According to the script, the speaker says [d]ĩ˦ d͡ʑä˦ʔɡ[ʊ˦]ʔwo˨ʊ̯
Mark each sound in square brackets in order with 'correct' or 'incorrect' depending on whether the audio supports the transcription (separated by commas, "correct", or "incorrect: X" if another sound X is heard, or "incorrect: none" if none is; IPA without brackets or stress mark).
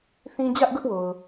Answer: incorrect: θ, correct